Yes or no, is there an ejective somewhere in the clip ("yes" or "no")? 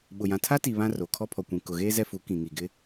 no